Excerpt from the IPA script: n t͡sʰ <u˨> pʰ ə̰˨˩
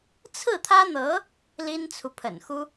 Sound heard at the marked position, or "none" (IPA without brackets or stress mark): u˨